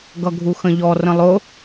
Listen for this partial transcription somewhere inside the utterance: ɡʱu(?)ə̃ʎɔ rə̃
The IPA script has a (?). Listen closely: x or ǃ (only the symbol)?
x